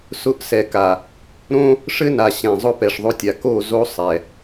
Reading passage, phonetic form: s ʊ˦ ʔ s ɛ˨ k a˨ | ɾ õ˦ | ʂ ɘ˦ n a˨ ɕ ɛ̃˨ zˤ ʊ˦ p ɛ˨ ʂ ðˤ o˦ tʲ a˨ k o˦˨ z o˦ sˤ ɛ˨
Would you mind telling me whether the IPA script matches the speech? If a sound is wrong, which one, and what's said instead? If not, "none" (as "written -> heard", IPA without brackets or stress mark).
none